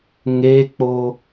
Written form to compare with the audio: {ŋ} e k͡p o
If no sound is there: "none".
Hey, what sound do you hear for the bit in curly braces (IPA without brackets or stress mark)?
ŋ